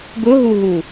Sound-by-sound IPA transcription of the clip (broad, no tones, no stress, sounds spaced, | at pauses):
ɡ ʊ ɦ u ɦ u